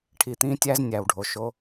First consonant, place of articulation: retroflex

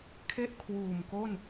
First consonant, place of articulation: velar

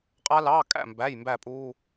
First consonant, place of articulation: uvular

